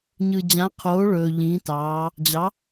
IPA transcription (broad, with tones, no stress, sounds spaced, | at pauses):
ɲ ɯ˨ d͡ʑ ã˨˥ qʰ oː˨˥ ɭ ɵː˨ ʎ ĩː˨˥ t ɑː˨˥ | d͡ʑ ɑ˨˥